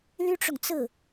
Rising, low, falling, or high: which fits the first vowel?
high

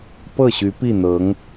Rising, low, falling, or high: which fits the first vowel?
falling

